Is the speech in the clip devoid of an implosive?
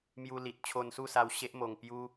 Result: yes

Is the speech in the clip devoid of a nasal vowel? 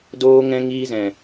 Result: no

